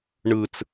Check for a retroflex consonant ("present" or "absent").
present